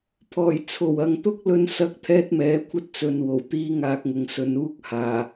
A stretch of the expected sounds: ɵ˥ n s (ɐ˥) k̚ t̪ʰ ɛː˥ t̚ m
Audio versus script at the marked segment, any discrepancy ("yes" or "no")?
no